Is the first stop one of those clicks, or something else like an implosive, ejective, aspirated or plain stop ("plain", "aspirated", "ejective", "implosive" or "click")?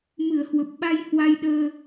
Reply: plain